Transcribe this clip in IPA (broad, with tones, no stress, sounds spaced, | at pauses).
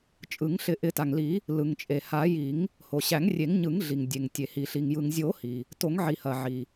t͡ʃʼ ɯ˨˩˦ ŋ ɬ ɪ˨˩˦ ʔ ɪ˨˩˦ t a˩ ŋ l i˨˩˦ | l ɯ˩ ŋ t͡ʃʼ e˩ h a˨˩˦ j i˨˩˦ ŋ | h o˩ ɕ æ˨˩˦ ŋ rʲ e˨˩˦ ŋ ɲ ɯ˨˩˦ ŋ ɮ i˩ ŋ dʲ e˩ ŋ tʲ e˩ h i˩ ɬ i˩ ŋ j ɯ˩ ŋ zʲ o˨˩˦ h i˩ | t o˨˩˦ ŋ ʕ i˩ h ɐ˩ ʕ i˩